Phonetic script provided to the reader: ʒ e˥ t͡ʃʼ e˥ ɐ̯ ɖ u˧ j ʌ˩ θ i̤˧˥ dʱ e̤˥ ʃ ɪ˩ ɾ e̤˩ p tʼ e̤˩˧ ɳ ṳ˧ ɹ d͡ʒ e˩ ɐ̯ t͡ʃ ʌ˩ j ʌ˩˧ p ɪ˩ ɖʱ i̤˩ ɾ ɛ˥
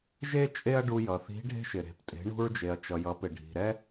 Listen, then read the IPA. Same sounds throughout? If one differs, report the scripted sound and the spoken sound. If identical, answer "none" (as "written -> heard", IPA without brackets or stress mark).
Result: dʱ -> ɖʱ